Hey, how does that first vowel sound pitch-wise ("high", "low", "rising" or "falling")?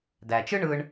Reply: low